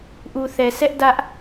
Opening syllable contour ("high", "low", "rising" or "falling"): low